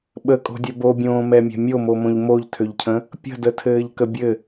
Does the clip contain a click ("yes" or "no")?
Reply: no